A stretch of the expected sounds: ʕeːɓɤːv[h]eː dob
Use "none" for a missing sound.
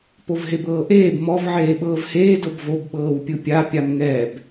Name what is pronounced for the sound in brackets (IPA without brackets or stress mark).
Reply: h